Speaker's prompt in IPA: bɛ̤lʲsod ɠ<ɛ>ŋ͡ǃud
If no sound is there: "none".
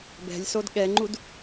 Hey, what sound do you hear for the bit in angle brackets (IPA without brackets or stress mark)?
ɛ